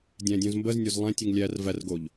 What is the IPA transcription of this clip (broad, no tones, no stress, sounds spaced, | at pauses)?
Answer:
dʲ æ̃ dʲ õ z m b ə z nʲ o z lˠ æ̃ tʲ ɯ ŋ lʲ æ r v æ r ɡ o ʎ